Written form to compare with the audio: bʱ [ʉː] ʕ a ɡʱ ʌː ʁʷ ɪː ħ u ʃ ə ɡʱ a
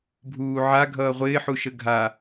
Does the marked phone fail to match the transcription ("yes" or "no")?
yes